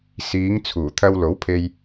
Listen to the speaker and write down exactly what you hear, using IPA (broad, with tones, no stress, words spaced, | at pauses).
siː˨˧ŋ t͡sʰuː˨˩ t̪ʰɐ˧wlo˨˥wpʰe˧j